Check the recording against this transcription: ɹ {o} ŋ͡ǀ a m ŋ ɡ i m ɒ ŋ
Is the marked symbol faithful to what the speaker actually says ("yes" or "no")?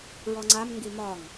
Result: no